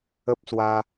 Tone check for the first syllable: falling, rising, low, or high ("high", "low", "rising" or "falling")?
high